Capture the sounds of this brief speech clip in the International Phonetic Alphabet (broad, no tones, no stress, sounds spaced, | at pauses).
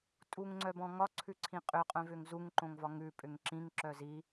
tʼ u ŋ ŋ͡ǀ œ b ɔ̃ ŋ ɒ ǀʰ ʉ ǀʰ ĩ qʼ ʏ qʼ œ̃ v ʏ ŋ z u ŋ ǃ õ ŋ v ɒ ŋ ʉ pʼ ʏ ŋ ǁ ĩ ŋ ǁ œ z i